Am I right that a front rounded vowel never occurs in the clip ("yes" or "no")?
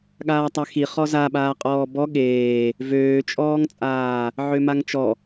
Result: no